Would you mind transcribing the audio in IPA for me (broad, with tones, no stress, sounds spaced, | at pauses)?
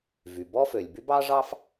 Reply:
v y˩ b ɔ˥ f ø˩ lʲ b y˥ b ɑ˥ ʐ ɑ˥ f